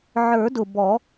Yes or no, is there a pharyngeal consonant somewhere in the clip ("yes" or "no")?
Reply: yes